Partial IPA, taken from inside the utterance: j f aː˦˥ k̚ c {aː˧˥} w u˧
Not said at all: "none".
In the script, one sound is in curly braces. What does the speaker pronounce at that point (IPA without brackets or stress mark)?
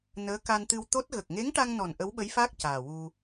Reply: aː˨˩